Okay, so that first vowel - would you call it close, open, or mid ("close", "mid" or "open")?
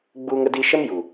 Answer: close